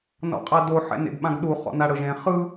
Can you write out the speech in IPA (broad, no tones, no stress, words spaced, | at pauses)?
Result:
nɔ̰qʼado ħɛ̰nḛɡɓãɡɗu χɔ̰naɽɤʒẽ χɯ